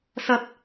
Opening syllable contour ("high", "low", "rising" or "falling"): low